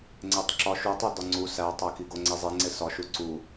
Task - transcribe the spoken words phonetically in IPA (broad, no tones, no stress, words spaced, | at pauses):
ŋ͡ǀetˤǁɒ ʃutˤu dɒŋ͡ǀu sætˤæki ɡoŋ͡ǀezˤeŋ͡ǀe sɒʃu ǀu